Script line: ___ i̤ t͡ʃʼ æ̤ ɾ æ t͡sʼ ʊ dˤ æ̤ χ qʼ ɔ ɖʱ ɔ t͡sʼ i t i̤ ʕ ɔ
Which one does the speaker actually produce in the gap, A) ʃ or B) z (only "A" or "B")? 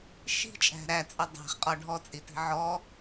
A